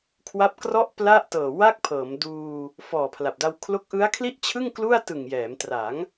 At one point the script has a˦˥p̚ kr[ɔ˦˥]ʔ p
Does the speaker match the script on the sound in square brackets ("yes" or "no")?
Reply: no